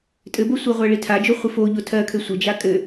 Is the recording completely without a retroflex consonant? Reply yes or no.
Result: no